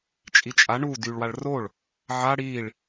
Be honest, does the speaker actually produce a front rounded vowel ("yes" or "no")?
yes